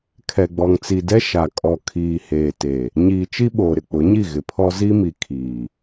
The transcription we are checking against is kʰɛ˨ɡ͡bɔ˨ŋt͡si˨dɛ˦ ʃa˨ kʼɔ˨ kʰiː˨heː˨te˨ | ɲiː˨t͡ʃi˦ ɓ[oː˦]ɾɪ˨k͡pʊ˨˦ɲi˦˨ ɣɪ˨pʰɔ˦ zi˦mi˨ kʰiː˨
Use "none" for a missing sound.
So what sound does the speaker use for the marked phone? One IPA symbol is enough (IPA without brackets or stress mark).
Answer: oː˨